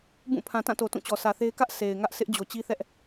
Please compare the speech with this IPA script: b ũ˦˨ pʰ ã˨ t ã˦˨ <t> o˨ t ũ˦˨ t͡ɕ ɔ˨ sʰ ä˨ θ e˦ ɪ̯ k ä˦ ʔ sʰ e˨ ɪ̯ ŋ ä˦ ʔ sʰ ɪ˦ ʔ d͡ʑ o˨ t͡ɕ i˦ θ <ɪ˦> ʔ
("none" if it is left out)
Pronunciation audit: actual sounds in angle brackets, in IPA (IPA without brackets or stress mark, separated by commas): t, ɛ˦